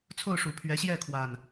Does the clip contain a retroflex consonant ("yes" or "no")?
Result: yes